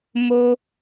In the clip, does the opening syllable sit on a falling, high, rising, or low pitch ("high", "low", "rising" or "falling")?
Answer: high